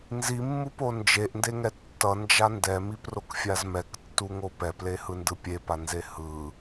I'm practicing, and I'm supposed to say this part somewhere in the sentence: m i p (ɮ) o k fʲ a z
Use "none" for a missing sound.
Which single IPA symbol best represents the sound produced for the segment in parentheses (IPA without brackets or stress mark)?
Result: r